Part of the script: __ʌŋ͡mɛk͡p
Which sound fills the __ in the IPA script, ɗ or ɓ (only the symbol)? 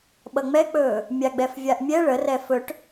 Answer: ɓ